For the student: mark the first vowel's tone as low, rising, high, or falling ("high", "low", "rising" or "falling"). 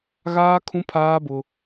high